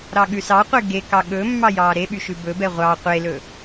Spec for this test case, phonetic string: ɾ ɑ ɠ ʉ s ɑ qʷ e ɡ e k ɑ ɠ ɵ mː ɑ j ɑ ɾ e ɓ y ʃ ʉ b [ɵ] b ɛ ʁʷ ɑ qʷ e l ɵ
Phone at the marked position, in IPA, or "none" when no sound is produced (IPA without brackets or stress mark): ɵ